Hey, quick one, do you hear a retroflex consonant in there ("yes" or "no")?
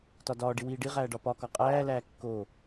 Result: yes